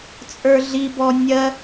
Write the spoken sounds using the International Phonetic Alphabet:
t͡sʼə˞ɮibɔ nʲɜ

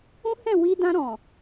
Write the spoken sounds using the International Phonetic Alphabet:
ũ˦hɛ̃˦˨wi˧ dã˧ɾɔ̃˨

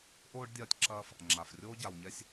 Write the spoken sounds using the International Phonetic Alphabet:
ʔoː˥ɖ dʲɐː˧tʲǁɐː˧f | ŋ͡ǁa˩frʲoː˥ ɟa˩wɲɛ˧sʲ

